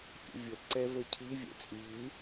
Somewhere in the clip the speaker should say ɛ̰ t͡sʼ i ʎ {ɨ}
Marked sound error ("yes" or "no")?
no